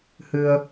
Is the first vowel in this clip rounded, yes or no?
no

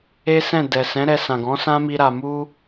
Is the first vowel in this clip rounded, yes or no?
no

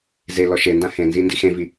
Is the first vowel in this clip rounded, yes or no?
no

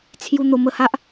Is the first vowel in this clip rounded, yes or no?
yes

